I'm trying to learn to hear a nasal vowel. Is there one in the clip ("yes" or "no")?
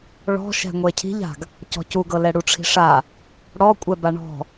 no